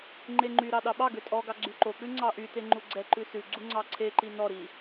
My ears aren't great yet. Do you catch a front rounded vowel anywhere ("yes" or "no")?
yes